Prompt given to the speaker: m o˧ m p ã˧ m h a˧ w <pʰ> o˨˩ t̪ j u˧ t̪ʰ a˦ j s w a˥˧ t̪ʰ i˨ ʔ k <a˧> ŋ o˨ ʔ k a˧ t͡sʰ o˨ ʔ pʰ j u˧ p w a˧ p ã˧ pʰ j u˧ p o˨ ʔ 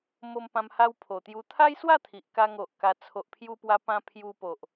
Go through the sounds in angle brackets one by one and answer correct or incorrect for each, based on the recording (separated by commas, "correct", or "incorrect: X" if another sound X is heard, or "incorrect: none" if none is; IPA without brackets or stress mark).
correct, correct